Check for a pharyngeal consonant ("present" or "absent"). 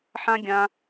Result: present